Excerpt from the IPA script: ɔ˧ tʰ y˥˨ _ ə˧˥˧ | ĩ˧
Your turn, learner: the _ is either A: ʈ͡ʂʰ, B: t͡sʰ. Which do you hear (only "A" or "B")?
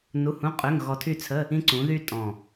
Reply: B